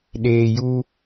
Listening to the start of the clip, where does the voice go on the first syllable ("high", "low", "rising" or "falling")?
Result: low